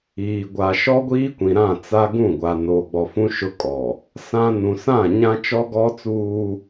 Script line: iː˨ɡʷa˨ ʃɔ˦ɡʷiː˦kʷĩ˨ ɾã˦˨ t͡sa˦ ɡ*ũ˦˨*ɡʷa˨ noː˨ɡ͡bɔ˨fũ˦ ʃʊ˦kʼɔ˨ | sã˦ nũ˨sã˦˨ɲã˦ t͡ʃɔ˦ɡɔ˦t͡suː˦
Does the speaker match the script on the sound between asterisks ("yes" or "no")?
yes